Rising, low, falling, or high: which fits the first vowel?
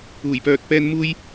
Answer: low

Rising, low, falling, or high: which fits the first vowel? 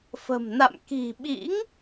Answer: low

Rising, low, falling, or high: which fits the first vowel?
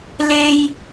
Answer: high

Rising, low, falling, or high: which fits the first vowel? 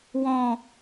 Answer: low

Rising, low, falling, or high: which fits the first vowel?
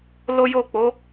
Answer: high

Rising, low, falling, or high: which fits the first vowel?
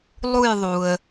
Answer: falling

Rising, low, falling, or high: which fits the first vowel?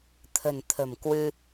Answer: low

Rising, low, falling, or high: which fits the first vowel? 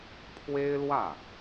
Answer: high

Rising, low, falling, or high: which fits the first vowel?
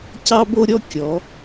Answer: high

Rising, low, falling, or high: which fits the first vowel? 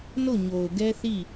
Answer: falling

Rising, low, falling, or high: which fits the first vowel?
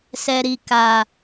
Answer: low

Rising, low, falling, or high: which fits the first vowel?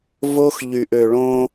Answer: high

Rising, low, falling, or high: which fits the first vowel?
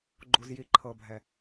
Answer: low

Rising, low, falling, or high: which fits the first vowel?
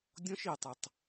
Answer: high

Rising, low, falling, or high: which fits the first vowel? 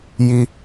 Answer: high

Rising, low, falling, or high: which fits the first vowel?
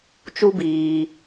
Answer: high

